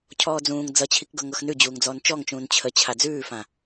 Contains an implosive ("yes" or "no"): no